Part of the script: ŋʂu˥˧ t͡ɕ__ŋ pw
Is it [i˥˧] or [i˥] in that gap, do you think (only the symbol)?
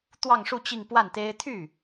i˥˧